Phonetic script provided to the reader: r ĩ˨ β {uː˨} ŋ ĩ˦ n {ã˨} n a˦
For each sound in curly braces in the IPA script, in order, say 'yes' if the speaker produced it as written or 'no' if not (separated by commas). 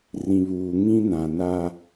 yes, yes